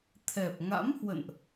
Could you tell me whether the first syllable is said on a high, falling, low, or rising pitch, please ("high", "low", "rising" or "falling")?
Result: low